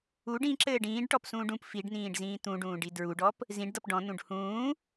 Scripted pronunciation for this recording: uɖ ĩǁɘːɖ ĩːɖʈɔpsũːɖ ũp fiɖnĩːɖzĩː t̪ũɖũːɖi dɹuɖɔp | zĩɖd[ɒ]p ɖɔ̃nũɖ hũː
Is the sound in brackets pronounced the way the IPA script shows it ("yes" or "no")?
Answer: no